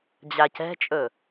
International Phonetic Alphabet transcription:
d͡ʑacɛ̤t͡ʃʼɵ

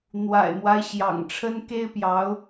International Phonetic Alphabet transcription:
n̪wa̰˨˩ɪ̯mwa˦ɪ̯ ɕjɑ̰˨˩ŋʈ͡ʂʰə˥n ke˥ɪ̯pjɑ˧˥ʊ̯

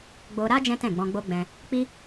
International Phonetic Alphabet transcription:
ɡ͡bo˧ɾa˦ d͡ʒɛ̃˦ tɛ̃˦˨ɡ͡bɔ̃˧ɡ͡bo˦ ɡ͡bɛ̃˧ | k͡pi˦

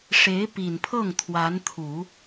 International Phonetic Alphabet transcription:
ʂe˧˥ɪ̯pi˨˩npʰɤ˥˩ŋ t̪ʰwa˧˥nt̪ʰu˨˩˦

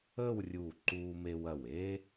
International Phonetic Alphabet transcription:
əː˥˧wrʲu˧˩ ǃuː˧me˧wɐ˧˩we˥

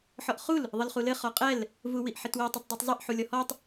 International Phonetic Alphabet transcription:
ħɔʔχul | ðˤɘlχulɘ χɔqʼɛl | vuwiʔħɘtwi tˤɛtˤdˤitˤzˤiʔ ħulʲɔhɔtˤ

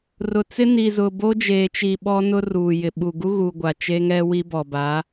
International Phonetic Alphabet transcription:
rʊ˨t͡sɪ˦ni˨ zʊ˨bo˦d͡ʒeː˨t͡ʃi˨ ɓɔ˦nʊ˦ruː˨ jɪ˨ɓu˨ɡu˦ ɣu˨ ɡʷa˨t͡ʃe˦ŋɛ˦wi˦ bɔ˨ba˨˦

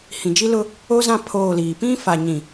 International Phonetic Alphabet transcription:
hĩ˨d͡ʒi˦lʊ˦ | o˦zã˦˨ pʰoː˦˨liː˨ pĩ˦fa˨ɲĩ˨

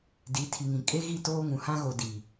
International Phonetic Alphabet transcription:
di˨˦tʰi˨ŋĩ˨ kʼe˦ɣi˦˨ toː˦ŋũ˨ hã˦ɣo˨ di˨

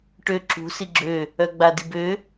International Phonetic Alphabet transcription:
ʈø ǁṳ siɡ͡ǁø | œɡ͡badibø

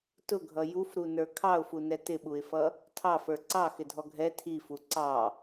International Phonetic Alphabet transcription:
tʊɡʱʌ jufɾunə˞ kʰɑʊ̯funɛ tɪɓuɪ̯fʌ | tʰɑfə˞ ǀɑxɪdʱɔ ɡʱɛ tʰifu ǀɑ

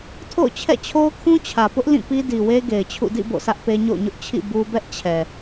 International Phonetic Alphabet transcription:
tʰo̰˦˨ʊ̯t͡ɕʰɛ̰˦˨t͡ɕʰo˦ʊ̯ kʰũ˦t͡ɕʰä˨pʊ˦ʔ lĩ˦˨pi˦di˨we˦ ɡe˨ɪ̯t͡ɕʰṵ˦˨ dḭ˦˨ bo̰˦˨sä˦ʔpe˦ ɲo̰˦˨ʊ̯ɲʊ˦ʔ t͡ɕʰḭ˦˨ bu˦ bɛ˦ʔt͡ɕʰɛ˨

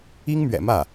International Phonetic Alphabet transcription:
i˥ŋmɥɛ̰˨˩mä˥˩

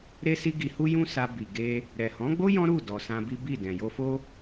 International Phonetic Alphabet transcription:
ɾe˦si˦ɡi˧hu˦ jũ˦sa˧ bi˨ɡe˧ | ɾɛ˨hɔ̃˨˦ɡ͡bo˦ jɔ̃˦ɾu˦˨dɔ˨ sã˧bi˦bi˦˨ dɛ̃˨jo˧fo˦

